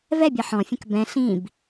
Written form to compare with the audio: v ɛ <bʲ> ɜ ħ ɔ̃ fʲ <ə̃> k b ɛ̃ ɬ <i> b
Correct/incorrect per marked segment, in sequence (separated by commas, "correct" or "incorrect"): correct, correct, incorrect